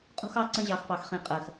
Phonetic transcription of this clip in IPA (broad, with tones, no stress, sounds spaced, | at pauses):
qʼ ṳ˦ x ɑ˦ ǀ ə̃˦ ʑ ɑ˨ x p ɑ˨ x χ ĩ˨ qʼ ɜ˨ x